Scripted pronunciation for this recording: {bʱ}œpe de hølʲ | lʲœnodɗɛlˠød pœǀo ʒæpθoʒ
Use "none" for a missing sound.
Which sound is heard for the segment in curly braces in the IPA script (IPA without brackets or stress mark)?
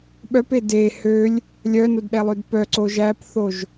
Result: ɓ